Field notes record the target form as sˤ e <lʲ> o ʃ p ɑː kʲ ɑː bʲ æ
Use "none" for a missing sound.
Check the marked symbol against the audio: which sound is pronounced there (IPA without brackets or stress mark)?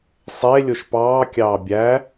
lʲ